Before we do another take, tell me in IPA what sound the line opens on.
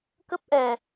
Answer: k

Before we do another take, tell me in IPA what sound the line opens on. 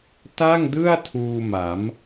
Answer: t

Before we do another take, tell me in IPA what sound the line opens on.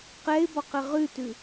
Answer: q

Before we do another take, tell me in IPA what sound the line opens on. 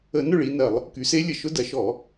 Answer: ə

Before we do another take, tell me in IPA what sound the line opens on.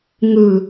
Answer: ŋ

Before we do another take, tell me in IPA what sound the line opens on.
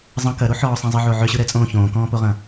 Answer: zˤ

